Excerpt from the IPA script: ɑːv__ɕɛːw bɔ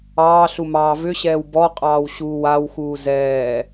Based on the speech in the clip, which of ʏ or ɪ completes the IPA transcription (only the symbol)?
ʏ